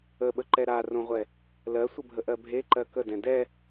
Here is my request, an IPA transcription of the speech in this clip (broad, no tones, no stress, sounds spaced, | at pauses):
ə ɓ ə ǃ ɛ ɾ a r õ ʁʷ ɛ | l ɜ sʷ ə bʱ ə ʔ ɜ bʱ e ǃ ɜ k ə d ɛ̃ d ɛ